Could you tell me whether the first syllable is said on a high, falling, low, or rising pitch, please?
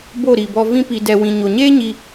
falling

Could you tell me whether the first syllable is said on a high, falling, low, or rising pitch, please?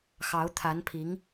rising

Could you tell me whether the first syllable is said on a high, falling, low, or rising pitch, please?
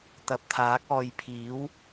rising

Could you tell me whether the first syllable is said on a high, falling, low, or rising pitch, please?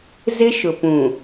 high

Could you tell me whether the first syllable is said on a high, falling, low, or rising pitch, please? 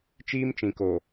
high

